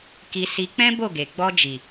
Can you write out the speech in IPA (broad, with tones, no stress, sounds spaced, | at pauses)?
k i˧ s i˧ k͡p ɛ̃˦ b o˦˨ ɡ e˨ ɡ͡b ɔ˧ d͡ʒ i˨